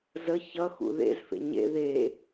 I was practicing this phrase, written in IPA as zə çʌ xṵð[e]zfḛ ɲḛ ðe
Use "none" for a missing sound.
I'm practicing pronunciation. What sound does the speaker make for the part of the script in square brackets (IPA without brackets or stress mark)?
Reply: ḛ